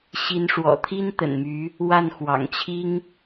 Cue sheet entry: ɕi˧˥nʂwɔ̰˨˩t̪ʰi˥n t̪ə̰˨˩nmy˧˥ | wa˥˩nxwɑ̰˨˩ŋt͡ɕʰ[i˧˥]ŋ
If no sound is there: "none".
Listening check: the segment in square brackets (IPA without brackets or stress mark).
i˥